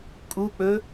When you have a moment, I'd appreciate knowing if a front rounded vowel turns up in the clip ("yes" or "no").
no